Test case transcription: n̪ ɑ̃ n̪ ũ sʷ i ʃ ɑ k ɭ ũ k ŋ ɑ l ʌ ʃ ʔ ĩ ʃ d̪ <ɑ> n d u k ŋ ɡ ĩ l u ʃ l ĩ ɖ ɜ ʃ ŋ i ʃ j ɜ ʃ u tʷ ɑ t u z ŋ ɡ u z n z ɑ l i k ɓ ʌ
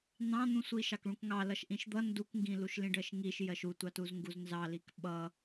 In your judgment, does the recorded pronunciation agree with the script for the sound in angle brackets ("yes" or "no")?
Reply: no